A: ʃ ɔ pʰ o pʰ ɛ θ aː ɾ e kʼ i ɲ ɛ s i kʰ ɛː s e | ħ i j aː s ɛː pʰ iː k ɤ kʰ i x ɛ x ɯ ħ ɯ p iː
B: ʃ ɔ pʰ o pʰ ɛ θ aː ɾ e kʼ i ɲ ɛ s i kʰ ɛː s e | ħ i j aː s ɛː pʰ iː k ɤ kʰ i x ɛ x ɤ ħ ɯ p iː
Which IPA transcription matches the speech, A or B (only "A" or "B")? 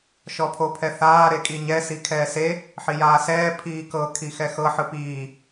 B